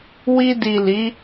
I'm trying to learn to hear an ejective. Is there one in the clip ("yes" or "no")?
no